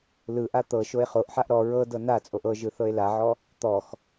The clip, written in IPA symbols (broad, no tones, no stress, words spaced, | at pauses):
lɯʔa t̪ɤ ʃoe̯χoʔħaʔ ɾɔ ɹɤ dɤnat͡sʼoʔ ɤʒɯ θɤe̯laʕɔ | t̪ɔx